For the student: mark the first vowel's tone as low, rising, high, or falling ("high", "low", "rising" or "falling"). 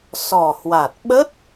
low